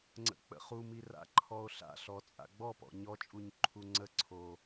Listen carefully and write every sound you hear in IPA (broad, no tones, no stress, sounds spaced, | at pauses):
ŋ͡ǀ ə̰ k͡p ə̰ χ u m i r a̰ ǃʰ ɔ o̯ ɬ a̰ ɬ ɔ t͡sʼ a̰ ɡ͡b ɔ p ɔ̰ ɲ ɔ t͡ʃʼ u ɲ ǃʰ u ŋ͡ǀ ə ǀʰ o